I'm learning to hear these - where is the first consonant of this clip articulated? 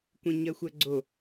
velum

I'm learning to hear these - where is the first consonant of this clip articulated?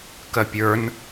velum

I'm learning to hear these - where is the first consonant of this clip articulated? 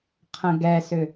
uvula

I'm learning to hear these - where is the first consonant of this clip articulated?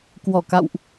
velum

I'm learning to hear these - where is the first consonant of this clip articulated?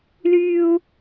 tongue tip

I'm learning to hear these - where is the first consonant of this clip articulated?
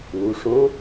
retroflex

